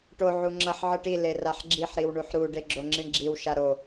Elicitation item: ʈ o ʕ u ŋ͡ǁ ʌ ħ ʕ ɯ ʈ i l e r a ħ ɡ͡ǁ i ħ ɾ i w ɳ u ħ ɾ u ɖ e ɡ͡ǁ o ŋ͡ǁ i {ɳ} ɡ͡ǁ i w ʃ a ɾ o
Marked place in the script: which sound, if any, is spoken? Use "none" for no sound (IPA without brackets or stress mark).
ɳ